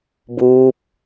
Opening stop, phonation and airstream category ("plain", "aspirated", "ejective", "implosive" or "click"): plain